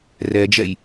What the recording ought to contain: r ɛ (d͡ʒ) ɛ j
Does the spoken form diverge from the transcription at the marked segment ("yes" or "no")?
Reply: no